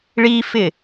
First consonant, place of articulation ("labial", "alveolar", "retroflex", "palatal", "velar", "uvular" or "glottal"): retroflex